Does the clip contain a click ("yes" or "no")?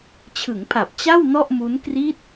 no